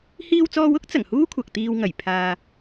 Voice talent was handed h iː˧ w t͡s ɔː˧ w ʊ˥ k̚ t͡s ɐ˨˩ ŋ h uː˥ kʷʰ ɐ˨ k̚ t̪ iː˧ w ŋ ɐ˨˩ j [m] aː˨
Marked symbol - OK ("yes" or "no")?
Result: no